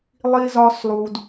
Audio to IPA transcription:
lˠi˧zɒ˧slˠu˨d

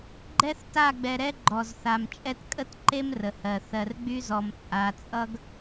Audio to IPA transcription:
ɡ͡ǃɛ˦θta˦˨ɡ͡bɛ˨ ɾɛ˦ɡ͡ǃɔ˨z θa˨mt͡ʃʼɛ˦t kʼə˦tǃe˦m rə˨hɜ˨ θɜ˨rɡ͡by˦ zɔ˨mt͡sʼa˨ t͡sʼʌ˦ɡ

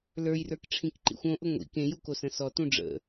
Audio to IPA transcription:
lə˞jrə˞k ʈ͡ʂʰĩkǃḭxʷõʔʊ ŋʷḭ kẽju kosə̃sɔtũ ɖ͡ʐə̰

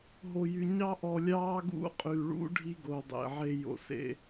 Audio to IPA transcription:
ɦo˨jy˨ ɲɑ˦ʔɔ˨lʲɑː˦ ɡṵ˦˨qʼy˨ɭṵ˦ ɖʱi˦ ɡo˨dˤḛ˨ ʕe˦ jo̰˨sḛ˦

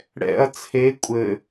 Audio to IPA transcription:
ɽɛ̰ɐ̯ t͡sʰe kʷʼɘ

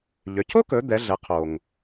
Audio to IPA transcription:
ʎø˩˧cʰo˥kɵ˩˧ d̪ɛ˩˧ɮɛ˩˧ qʰo˩ŋ

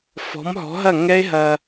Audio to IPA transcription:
fɔ̤˨˦mɦɔ̤˨˦ɦɐ˦˨ ŋɛ˦e̯ ɦɐ˧

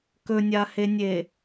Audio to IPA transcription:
kɵnʲahenʲe

